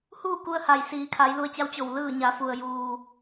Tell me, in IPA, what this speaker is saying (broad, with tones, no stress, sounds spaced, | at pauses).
h uː˥˨ k u˧ ə̯ h a˩ j s iː˩˧ kʰ a˩˧ j l u˧ ə̯ t͡ɕ a˧˥ w t͡ɕ o˧˩ w l ɯː˧˩ ɲ a˩˧ f u˩ ə̯ j uː˩